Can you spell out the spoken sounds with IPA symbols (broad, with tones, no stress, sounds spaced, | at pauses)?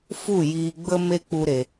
f u˦˨ j iː˧ ɡ͡b ə˦ m e˦ k͡p u˦ ɾ e˧